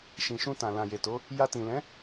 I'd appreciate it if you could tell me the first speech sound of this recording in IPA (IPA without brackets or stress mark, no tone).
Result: ʃ